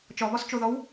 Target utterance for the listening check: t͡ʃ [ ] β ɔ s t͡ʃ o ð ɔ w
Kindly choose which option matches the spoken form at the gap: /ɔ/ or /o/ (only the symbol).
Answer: ɔ